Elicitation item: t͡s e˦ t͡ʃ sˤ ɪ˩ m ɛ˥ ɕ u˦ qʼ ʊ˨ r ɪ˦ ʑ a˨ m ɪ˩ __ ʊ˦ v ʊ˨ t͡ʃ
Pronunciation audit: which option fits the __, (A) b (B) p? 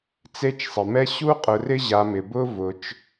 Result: A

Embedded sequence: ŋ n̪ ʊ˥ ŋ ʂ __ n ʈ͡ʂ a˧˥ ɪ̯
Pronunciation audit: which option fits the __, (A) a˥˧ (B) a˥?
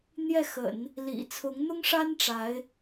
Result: B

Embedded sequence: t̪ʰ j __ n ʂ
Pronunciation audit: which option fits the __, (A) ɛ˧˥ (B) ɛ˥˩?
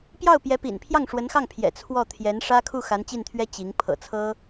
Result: A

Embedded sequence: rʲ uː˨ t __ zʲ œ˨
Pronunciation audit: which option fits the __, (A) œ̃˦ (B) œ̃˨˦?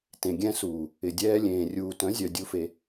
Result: B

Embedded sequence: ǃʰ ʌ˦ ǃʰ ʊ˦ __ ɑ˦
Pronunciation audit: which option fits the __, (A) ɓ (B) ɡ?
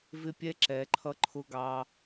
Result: B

